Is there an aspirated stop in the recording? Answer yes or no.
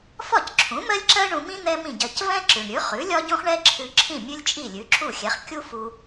yes